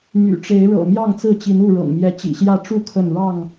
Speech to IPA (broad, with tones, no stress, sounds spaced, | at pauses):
m y̰˨˩ ʈ͡ʂ e˨˦ ɪ̯ ɻ ɤ̰˨˩ m j ɑ˥˨ ŋ t͡s ɹ̩˥˨ t͡ɕ i˨˦ n u˥˨ ɻ ɤ̰˨˩ ŋ m j ɛ˨˦ t͡ɕ ḭ˨˩ ɕ j ä˥˨ ʈ͡ʂ u˥˨ kʰ ə˥˨ n ɻ ɑ˥˨ ŋ